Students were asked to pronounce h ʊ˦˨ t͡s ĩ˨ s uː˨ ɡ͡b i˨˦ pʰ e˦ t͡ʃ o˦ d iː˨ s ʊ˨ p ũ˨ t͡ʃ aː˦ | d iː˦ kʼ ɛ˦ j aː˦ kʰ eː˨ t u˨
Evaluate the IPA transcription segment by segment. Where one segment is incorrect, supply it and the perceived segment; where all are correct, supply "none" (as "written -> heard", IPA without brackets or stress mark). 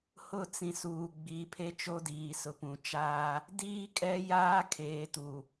none